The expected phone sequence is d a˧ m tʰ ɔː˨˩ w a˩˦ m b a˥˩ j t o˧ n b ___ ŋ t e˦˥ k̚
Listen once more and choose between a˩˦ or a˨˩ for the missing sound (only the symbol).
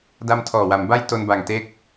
a˨˩